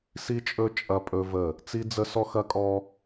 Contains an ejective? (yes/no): yes